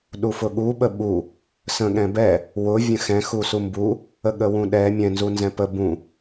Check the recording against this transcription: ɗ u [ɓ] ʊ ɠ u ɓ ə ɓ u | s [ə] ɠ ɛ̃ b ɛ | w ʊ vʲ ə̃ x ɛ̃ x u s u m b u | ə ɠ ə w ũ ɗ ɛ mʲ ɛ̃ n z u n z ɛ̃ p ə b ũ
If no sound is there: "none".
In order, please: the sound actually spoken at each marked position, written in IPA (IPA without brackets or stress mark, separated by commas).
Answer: f, ə̃